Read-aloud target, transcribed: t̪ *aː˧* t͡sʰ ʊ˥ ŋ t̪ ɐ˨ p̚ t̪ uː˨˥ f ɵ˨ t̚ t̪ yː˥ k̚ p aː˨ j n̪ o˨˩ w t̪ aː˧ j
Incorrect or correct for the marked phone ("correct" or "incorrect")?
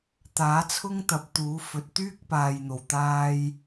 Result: incorrect